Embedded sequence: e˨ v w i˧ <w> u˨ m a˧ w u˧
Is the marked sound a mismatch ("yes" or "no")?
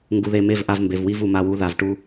yes